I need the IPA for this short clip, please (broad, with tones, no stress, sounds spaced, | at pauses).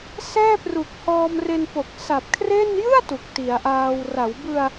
s ɛː˥˩ p r u˨˩ k̚ h ɔː˧ m r e˧ n p o˨˩ k̚ s a˨˩ p̚ kʰ r e˥˩ n j ɯ˥˩ a̯ t u˨˩ k̚ t i˩˦ a̯ ʔ aː˧ w r a˩˦ w b ɯ˧ a̯